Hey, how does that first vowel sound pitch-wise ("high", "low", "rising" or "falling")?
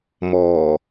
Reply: low